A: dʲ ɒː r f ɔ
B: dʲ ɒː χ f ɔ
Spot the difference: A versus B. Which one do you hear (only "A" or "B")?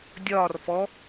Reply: A